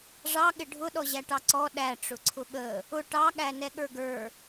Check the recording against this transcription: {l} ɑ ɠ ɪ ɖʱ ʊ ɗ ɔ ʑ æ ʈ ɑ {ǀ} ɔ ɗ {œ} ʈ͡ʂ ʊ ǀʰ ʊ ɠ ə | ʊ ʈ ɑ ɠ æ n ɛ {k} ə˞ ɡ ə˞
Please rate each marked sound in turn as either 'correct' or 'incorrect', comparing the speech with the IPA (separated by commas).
incorrect, correct, incorrect, incorrect